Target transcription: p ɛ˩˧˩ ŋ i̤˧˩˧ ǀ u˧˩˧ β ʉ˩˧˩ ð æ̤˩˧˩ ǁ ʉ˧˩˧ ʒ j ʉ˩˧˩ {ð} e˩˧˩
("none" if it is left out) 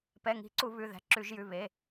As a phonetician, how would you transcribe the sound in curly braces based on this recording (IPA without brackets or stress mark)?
β